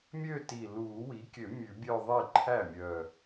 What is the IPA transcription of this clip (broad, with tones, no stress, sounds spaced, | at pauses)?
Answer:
mʲ ø˥˧ t i˨˩ l uː˨˩˦ w i˩˥ kʲ ø˨˩˦ mʲ ʉ˨˩˦ bʲ œ˥˧ ðˤ i˥˩ ǃʰ æ˥˩ mʲ œː˨˩